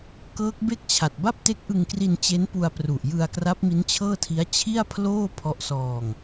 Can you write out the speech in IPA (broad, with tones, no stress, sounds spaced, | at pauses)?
k ɤː˦˥ k̚ b e˥˩ k̚ t͡ɕʰ a˨˩ t̚ b a˥˩ p̚ t e˦˥ k̚ ʔ ɯ˧ ŋ k r i˧ n t͡ɕ e˦˥ n p u˧ a̯ p r u˨˩ ʔ j ɯ˧ a̯ k r a˦˥ p̚ m i˦˥ n t͡ɕʰ ɤː˥˩ tʰ i˦˥ a̯ t͡ɕʰ i˥˩ a̯ pʰ l oː˥˩ pʰ ɔ˦˥ ʔ s ɔː˧ ŋ